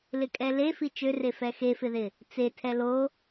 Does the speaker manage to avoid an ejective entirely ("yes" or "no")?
no